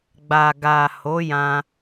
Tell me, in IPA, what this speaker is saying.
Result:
ɡ͡b a˨ ɡ a˨ h o˨˦ j ã˧

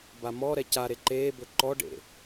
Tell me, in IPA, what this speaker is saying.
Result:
b a m ɔ ɾ ɛ c a ɾ e ǃ eː b ɵ ǃ ɔ ɖ ḛ

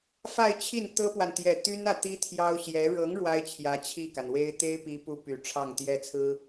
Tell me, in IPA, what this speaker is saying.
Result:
f a˥˧ ɪ̯ t͡ɕʰ i˥˩ n t̪ ɤ˥ p w a˨ n t̪ j ɛ˨˩ t̪ y˥ n ä˨ t̪ i˥ t̪ʰ j ɑ˥ ʊ̯ ɕ j ɛ˧˥ ɻ ɤ˧˥ ŋ ɻ w a˥ ɪ̯ t͡ɕʰ j ä˧˥ t͡ɕʰ i˥˩ k a˩ n w e˥ ɪ̯ t̪ e˥ ɪ̯ p i˧˥ p u˥ p y˨˩ ʈ͡ʂʰ ɑ˥˩ ŋ t̪ j ɛ˥ t͡sʰ ɹ̩˥

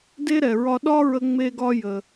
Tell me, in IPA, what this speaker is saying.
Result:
d e˥ ɾ ɛ˩ ɹ ɒ˧ ɗ ɒ˥ ɹ ə˧ ŋ͡m e˧ ɡ ɒ˧ j ə˩

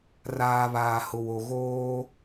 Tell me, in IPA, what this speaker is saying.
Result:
r aː˨ β aː˨ h ʊ˨ w o˨ ɣ oː˦

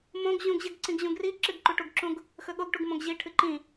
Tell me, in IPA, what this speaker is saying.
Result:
m õ ɡ ʑ ũ ɡ ʑ ɨ ɡ ǀ ĩ ɡ ʑ ũ ɡ r i ǁ ɨ ɡ ǃ u ʈ u ɡ ǁ ũ ɡ | x ɵ ɠ o ɡ ʈ u ɡ m õ ɡ ʑ i ʈʰ ɨ ǃ ĩ

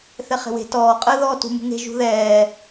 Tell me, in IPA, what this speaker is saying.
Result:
θ ɛ χ e̤ w e̤ t ɔː qʼ əː ð ɔː t ṳ m ṳ ŋ e̤ ʒ ṳ ð ɛː

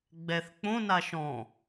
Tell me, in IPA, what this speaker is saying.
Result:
ɡ͡b ɛ θ k͡p õ n a ʃ ɔ̃

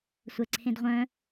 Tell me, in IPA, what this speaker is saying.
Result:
sʷ ɛ ǀʰ ẽ d ʁʷ œ̃

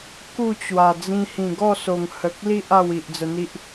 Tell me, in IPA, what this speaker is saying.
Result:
k u˥˧ t͡ɕ w a˨˩ d͡z ĩ˧ h ĩ˨˩ ɡ ɔ˥˧ s o˨˩ ŋ h ə˨ k̚ l i˦ ʔ a˥˧ w i˨ ʔ d͡z ə˧ n̪ i˦ ʔ

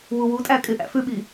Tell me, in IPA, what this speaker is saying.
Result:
w u w u tʼ æ kʼ ɪ ʔ æ̰ f ʉ ɓ i

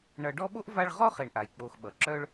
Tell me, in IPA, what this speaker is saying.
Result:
ɳ ʌ˨ ɖ ɔ˦ ɓ o˥ ʔ v a˦ ɭ ʁ ɔ˥ χ e˨ ɳ ʔ a˩ j k͡p o˨ x ɓ ʌ˩ ǁ œ˥ ɭ

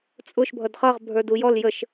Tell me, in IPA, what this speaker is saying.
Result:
t͡sʼ ʊ ʃ bʱ ʌ d χ ʌ ʁ bʱ ə˞ d u j ɔ l j ə ʃ

